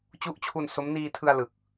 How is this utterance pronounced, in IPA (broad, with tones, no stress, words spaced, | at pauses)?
t͡ɕu˦˥ʔt͡ɕʰu˧n so˦˥m niː˧tʰɯ˧a̯ lɯ˨˩k̚